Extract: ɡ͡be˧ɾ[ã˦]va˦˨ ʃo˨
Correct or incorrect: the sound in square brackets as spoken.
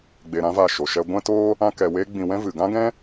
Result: correct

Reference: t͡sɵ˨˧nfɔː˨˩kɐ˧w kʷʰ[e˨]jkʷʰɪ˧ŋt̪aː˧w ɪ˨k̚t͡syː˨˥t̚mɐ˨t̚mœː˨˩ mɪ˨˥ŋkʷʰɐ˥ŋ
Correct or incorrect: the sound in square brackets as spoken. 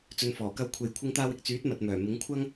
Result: correct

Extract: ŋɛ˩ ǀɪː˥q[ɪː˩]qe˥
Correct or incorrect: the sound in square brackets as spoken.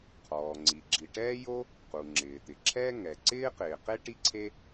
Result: correct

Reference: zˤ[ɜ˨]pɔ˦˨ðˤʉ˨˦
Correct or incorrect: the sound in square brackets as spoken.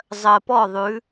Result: correct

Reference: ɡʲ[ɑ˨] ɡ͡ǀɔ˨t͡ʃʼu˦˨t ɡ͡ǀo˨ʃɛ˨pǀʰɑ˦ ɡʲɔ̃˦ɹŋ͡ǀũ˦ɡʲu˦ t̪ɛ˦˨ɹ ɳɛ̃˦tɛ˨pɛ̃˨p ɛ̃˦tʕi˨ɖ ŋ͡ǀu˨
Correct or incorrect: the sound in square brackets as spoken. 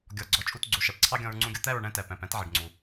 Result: incorrect: ɔ˨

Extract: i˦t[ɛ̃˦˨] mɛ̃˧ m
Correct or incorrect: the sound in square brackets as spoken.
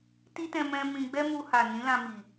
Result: incorrect: ɛ̃˧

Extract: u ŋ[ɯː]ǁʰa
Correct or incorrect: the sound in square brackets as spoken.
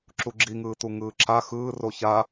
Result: correct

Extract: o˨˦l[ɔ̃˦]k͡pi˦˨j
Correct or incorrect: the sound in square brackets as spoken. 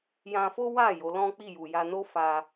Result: correct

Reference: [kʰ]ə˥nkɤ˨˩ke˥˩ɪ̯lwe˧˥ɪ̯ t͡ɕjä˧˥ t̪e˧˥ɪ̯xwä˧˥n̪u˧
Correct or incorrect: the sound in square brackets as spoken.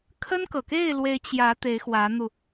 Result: correct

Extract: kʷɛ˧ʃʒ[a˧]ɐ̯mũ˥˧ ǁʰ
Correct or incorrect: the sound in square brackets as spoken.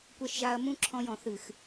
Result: correct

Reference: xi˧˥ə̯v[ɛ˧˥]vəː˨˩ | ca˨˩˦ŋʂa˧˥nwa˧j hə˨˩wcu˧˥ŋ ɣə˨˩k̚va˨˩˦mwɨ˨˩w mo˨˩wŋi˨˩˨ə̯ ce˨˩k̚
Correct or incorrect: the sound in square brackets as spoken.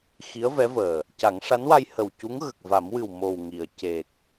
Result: correct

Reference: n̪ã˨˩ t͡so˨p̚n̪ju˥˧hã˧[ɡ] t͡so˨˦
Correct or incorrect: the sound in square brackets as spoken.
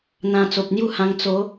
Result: incorrect: ŋ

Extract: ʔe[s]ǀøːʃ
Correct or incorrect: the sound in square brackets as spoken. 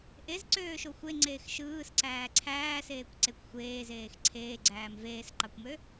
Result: incorrect: z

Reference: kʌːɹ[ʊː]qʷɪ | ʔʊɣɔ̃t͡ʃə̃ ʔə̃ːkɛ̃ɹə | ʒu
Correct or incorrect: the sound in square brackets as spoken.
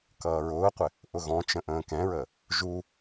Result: correct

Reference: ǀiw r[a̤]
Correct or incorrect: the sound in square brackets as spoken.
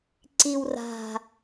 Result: correct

